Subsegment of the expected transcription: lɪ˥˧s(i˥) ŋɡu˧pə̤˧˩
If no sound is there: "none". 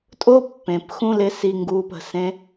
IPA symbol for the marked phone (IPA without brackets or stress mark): i˧